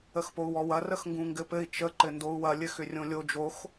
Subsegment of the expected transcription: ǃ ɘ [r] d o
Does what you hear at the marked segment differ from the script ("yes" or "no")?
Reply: yes